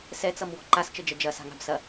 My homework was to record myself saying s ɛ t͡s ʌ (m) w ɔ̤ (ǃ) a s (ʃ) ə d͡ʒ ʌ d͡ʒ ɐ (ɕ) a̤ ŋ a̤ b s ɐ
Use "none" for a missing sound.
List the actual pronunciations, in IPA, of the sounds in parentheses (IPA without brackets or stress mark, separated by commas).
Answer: m, ǃ, t͡ʃ, s